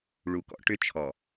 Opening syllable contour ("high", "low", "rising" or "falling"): low